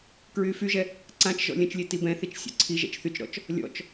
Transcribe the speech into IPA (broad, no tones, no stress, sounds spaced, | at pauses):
k ɹ yː f y ʒ ɛ | ǀ ã t͡ʃ ʒ ɔ̰ lʲ ə̃ t͡ʃ lʲ e t i b ɛ̃ θ i t͡ʃ sʲ ɔ̰ ǀʰ i ʒ ɛ̰ t͡ʃ θ y t͡ʃ ɾ ɔ̰ t͡ʃ | lʲ ɔ̰ t͡ʃ